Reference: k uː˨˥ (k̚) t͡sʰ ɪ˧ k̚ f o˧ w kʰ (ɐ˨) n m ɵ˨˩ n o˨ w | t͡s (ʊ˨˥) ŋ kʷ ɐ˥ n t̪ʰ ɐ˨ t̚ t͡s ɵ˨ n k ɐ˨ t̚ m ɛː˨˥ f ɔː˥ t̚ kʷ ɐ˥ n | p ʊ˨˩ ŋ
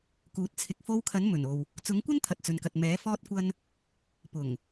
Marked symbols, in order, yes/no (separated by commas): no, no, yes